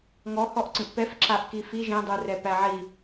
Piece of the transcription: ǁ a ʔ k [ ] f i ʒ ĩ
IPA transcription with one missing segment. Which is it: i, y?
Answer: i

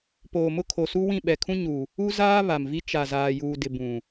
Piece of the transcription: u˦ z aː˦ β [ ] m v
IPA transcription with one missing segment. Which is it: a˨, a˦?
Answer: a˨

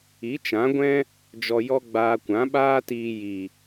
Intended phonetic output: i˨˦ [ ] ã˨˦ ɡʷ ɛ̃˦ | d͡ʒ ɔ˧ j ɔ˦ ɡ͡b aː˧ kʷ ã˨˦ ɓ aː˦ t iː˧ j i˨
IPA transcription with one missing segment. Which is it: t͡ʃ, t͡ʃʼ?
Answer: t͡ʃ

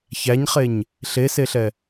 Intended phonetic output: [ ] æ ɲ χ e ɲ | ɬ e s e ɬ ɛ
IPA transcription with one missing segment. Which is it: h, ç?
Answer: ç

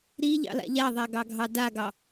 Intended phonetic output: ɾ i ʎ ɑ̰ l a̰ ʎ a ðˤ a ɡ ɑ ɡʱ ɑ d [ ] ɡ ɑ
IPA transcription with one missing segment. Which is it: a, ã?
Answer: a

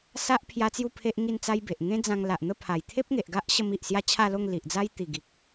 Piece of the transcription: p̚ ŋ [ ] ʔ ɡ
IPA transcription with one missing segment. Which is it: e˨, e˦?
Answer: e˨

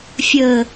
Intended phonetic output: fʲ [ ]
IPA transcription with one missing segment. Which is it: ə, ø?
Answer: ə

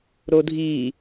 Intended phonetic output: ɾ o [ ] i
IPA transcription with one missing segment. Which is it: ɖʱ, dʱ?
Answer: dʱ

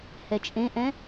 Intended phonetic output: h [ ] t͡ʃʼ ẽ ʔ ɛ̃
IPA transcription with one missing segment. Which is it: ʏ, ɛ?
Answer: ɛ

